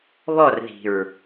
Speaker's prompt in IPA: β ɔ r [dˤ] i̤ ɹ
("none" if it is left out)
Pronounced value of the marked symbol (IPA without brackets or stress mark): ð